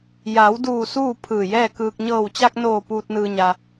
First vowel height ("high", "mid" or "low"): low